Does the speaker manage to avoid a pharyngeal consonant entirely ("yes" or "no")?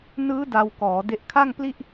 yes